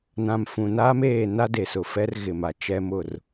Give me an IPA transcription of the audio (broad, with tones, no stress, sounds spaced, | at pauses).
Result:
n ã˨ m f ũ˨ n aː˦ m eː˦˨ n a˦ d e˨ s ʊ˨ f ɛ˦ r ɣ ɪ˨ m a˨ t͡ʃ ɛ˦ m ʊ˦˨ r